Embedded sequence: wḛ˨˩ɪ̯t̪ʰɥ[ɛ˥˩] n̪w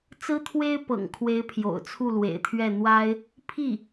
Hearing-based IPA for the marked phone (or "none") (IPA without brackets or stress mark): ɛ˥˩